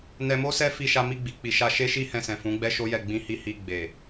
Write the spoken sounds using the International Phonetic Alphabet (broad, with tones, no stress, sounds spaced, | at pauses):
n ɛ˧ m o˦ s ɛ˦ f i˧ ʃ a˧ m i˧ ɡ͡b i˨ k͡p i˨ ʃ a˧ ʃ e˦ ʃ i˦ h ɛ̃˧ s ɛ̃˨ f ũ˨˦ ɡ͡b ɛ˦ ʃ o˦ j ɛ˦˨ ɡ͡b ĩ˧ h i˧ h i˧ ɡ͡b e˨